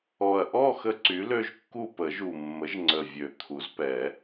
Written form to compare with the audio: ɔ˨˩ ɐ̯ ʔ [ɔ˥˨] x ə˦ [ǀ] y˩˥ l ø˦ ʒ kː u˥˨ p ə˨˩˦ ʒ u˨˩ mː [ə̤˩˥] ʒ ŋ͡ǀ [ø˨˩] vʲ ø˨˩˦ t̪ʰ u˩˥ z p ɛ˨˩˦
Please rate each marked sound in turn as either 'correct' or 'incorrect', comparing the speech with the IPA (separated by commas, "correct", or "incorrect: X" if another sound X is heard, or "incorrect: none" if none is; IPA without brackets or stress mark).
correct, correct, incorrect: ə˩˥, incorrect: ə˨˩